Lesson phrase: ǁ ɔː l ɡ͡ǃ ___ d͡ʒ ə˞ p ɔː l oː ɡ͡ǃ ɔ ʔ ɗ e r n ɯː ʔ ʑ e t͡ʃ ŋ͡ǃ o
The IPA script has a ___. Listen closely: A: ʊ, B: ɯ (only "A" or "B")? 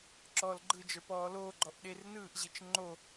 B